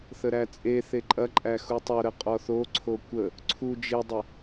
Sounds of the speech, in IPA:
θəɾæt͡sʼeθe ǃʼɐǃʼæ xutˤoɾə qʼɔθoǀʰo kʷə | ǀʰu d͡ʒedˤə

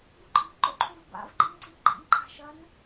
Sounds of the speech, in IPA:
buǃʼi̤ ǃo̰ǃʰuvba̰v ɡ͡ǃinǀiɡ͡ǃḭn ǃʰa̤ʃɐn

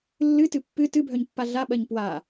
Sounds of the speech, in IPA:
lːɨtɨ pːɨ tɨbʱœɲpːa ɮaɓɜɲ pwa

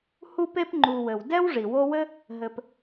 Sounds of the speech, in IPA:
hu˦pe˦pŋ͡ǃu˨wɘ˩w dɛ˥wʐi˩wo˦wɘ˥ | ɦɘ˨p

